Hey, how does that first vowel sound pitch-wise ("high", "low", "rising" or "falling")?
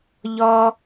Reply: high